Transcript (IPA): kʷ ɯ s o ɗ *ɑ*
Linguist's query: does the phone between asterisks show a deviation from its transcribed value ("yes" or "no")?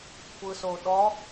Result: yes